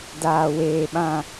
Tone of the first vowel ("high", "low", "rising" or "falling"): low